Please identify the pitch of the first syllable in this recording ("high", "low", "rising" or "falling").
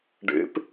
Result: rising